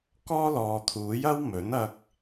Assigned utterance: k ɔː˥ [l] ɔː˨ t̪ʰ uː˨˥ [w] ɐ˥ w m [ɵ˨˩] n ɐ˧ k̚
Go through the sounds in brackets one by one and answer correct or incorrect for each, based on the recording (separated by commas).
correct, incorrect, incorrect